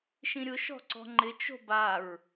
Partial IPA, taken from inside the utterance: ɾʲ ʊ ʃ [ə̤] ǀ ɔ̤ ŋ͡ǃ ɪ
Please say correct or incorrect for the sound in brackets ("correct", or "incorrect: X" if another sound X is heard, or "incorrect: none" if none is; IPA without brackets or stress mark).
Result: incorrect: ɔ̤